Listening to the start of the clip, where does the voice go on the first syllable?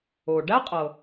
low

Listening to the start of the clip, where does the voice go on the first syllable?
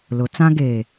rising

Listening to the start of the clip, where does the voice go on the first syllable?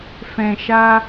low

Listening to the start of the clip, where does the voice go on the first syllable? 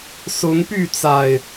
rising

